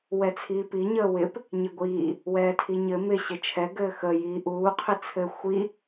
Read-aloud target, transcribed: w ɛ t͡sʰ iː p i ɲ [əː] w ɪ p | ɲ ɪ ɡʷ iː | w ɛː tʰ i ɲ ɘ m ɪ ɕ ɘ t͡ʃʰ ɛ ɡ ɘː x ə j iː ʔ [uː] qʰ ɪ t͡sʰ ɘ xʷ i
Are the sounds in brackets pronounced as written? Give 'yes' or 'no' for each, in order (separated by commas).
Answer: yes, yes